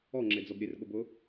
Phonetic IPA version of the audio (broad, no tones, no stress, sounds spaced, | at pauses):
ɔ ŋ͡ǁ e d͡z ɔ b ɾʲ e r ɠ ʊ b ʊ